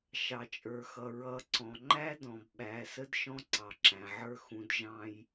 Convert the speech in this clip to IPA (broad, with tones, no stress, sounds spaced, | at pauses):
ʃ ɑ˨ t͡ʃʼ ə˞˨ x ʌ˨ ɹ ʌ˨˦ ǀ ɔ̃˨ ŋ͡ǃ æ˦ d ɔ̃˨ b ɓ æ˨˦ s ə˦ d ʃ ɔ̃˦ ǀ ɑ˨ ǁ æ̃˨ ʕ ə˞˦ x ũ˨ d ʒ ɑ̃˦ j